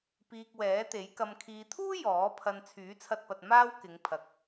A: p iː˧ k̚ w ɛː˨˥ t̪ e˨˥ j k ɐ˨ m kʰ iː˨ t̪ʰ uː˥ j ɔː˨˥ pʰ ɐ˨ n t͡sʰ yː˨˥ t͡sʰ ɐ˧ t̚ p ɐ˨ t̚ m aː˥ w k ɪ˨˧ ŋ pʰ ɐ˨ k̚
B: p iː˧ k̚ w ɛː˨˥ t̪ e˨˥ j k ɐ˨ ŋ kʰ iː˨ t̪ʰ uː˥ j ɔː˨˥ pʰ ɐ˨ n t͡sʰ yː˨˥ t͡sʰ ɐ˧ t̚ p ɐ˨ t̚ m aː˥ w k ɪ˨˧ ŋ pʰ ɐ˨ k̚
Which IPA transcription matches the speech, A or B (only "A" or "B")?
A